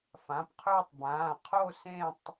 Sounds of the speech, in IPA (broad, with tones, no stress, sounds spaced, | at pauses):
f ã˩˧˩ p qʰ ɵː˦˨ tˤ b ãː˩˧˩ qʰ o˦˨ s ẽ˦˨ tˤ